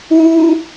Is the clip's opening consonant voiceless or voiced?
voiced